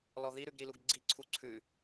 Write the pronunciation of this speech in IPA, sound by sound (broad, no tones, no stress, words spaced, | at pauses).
lɔðiɾʉɡ ɾiluɡɡ͡ǀi ǀʰuǀʰʉ